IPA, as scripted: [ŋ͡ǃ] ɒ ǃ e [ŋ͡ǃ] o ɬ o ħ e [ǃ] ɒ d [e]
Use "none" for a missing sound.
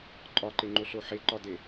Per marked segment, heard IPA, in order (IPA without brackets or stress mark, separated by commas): ǃʼ, ŋ͡ǃ, ǃ, e